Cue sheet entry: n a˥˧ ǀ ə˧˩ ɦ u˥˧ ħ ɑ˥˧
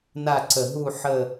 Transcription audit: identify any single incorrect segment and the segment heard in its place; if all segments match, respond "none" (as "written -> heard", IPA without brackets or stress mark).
ɑ˥˧ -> ə˥˧